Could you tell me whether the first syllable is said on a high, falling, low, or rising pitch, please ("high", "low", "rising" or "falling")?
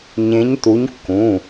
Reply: rising